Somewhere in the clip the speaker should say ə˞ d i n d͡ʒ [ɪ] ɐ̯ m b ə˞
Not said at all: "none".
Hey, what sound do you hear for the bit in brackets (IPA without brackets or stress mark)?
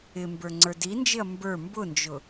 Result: ɪ